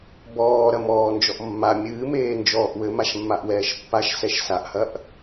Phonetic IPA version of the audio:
bɔːɾɐmɔː nd͡ʒɔʔmːa mʲɨːmeː nd͡ʒɔːʔwɘmaʃmːaʔ wɛːʃpːaʃ sɛʃsaʔhɐʔ

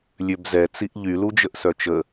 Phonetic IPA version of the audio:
lʲøbzɛ t͡siʔʎy lud͡ʒəʔsœt͡ʃə

